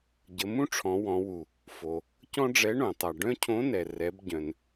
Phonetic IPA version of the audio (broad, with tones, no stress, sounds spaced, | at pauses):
ɟ ə˩˧ m ũ˥ ʈ͡ʂʰ ɔ̃˩˧ w ɔ̃˩˧ w u˩ | f o˩ | c ɔ̃˥ ɖ͡ʐ ɛ˧˥ ɳ õ˩ tˤ a˩ ɖ œ̃˥ cʰ õ˧˥ n ɛ˩ r ɛ˩˧ b ɟ œ̃˩ n